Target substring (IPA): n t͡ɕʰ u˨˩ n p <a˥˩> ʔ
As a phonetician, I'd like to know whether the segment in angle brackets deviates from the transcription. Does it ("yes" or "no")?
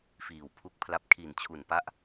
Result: yes